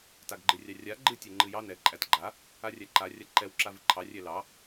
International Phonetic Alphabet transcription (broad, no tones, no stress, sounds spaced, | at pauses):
t a ɡ ɡ͡ǃ ɨ rʲ ɑ rʲ a ɡ͡ǃ ɨ tʲ ɛ ŋ͡ǃ ɨ j ɑ n ɛ ǃʼ æ t ɡ͡ǃ a | a rʲ æ ǃ a rʲ a ǃ ɛ w ǁ a v ɨ ǃʰ ɑ rʲ ɛ l ɑ